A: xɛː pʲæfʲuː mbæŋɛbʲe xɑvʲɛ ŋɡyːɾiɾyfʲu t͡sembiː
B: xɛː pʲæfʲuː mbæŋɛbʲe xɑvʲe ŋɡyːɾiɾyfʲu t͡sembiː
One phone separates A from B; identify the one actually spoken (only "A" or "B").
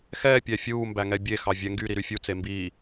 A